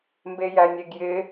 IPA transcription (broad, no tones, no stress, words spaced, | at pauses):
mbejænʲeɡjɪ